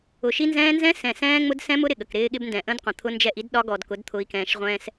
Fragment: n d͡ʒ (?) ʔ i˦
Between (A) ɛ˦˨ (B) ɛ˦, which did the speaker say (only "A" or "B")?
A